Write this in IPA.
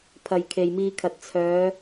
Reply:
pʰɐ˨jkʰe˨jmiː˧kʰɐ˨t̚ t͡sʰœː˨˧

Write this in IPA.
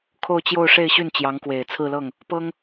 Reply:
kʰo˥˧ʊ̯t͡ɕjo˥˧ʊ̯ ʂe˥˧ɪ̯ɕy˥˩n t͡ɕjɑ˧˥ŋkwe˨˩ɪ̯t͡sʰɹ̩˥˧lɤ˥˩ŋ | pɤ˥ŋ

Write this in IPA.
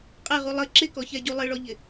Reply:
qʼɛʁu lˠə ǁɪkɔçɛɟu lˠɪɭɔʎɪ

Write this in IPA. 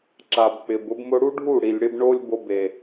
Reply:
ǁa˨bk͡pɪ˨bʊ˦b mʊ˧ɽu˦ɖʱu˦˨ ɽi˨lʲɽɪ˦b ɳo˦lʲ bo˧be˨

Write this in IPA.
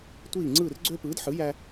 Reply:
tʷiː˥˩ ŋ͡ǀɯː˥˩rɡ͡ǀø˥ pɯː˩˥dħɯ˩˥ jæ˥

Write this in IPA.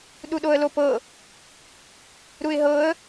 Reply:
ɗuɗoə̯lopɤ | ɾuɪ̯ɦɤə̯

